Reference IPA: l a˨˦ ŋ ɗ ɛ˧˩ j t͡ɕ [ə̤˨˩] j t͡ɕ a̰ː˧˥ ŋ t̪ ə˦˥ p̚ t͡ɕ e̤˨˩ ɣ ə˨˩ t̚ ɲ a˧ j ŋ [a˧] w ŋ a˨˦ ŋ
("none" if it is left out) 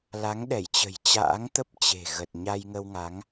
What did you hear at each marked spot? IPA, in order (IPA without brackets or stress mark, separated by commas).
ə̤˨˩, ə˧